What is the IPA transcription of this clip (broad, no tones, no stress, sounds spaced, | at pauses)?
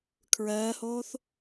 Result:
kʰ ɹ ɜː h oː θ